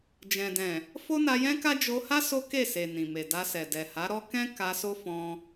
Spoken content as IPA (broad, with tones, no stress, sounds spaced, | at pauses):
d͡ʒ ɛ̃˨ d ɛ̃˨ | f o˦ n a˧ j ɛ̃˦ k a˦ d͡ʒ o˧ h a˦ s o˦ k e˦˨ s e˨ n ĩ˨ m e˨ d a˧ s ɛ˨ d ɛ˨ h a˨˦ ɾ ɔ˦ k ɛ̃˦ k a˧ s o˦ f ɔ̃˧